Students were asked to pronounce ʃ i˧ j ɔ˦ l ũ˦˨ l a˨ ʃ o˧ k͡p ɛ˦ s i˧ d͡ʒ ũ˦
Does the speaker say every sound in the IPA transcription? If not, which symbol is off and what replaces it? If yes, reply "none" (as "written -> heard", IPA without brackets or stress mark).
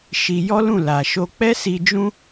none